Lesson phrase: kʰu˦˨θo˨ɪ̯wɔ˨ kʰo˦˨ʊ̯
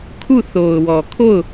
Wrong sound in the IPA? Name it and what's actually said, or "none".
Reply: ɪ̯ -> ʊ̯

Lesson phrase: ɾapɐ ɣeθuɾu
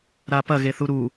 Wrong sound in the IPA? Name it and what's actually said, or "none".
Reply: none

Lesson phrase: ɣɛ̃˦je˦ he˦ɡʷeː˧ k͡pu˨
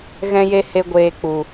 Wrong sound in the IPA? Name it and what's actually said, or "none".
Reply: none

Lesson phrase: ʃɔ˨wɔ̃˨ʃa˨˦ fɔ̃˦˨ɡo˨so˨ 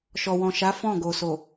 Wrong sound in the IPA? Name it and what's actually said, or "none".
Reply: none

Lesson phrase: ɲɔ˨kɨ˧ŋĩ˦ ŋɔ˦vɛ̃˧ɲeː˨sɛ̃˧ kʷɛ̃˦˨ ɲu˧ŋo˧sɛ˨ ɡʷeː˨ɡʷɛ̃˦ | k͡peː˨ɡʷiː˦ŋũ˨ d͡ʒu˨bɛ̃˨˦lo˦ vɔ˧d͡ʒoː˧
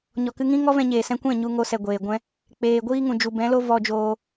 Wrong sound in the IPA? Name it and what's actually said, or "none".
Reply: none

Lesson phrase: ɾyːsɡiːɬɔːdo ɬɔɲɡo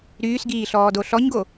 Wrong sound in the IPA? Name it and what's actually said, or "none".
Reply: none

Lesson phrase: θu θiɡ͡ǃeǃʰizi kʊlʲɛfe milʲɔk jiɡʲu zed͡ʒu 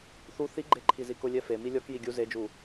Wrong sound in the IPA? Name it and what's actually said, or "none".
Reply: none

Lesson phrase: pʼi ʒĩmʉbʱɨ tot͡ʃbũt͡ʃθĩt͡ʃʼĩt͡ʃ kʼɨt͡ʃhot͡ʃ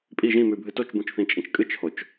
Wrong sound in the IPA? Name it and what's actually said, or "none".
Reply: none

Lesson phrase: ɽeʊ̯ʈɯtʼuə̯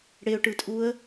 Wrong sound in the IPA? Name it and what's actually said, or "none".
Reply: none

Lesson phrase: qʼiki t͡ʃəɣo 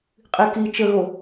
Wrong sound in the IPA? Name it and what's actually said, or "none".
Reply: none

